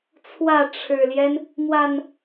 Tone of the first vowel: falling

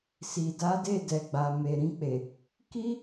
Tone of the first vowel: low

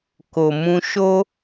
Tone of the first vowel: low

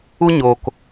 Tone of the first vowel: high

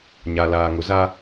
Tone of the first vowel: low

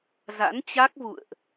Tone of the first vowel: rising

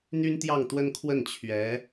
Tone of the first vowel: high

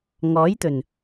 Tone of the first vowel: rising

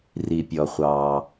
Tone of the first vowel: low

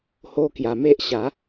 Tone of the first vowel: high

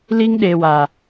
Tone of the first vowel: high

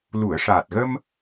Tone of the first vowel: low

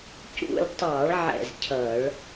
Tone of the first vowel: falling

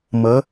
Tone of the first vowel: rising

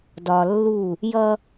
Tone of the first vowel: low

